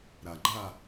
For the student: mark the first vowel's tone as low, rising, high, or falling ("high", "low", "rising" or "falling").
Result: low